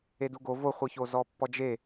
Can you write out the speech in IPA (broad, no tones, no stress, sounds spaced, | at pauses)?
e d u ɡ o v o χʷ ɯ ç o z ɔ pː ɔ d͡ʒ e